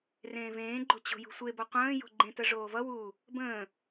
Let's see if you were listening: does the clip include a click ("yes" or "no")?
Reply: yes